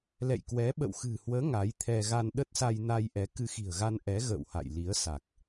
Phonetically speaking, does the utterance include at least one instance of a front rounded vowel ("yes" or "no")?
no